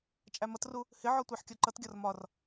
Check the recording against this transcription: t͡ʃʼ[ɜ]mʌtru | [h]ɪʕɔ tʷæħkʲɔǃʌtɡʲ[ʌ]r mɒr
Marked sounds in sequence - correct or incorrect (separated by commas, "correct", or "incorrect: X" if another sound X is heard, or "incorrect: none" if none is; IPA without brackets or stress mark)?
incorrect: æ, correct, incorrect: ɒ